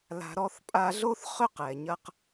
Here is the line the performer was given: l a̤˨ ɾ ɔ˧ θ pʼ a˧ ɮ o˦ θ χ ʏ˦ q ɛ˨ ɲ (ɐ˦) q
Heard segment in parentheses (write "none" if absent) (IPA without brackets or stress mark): ɐ˦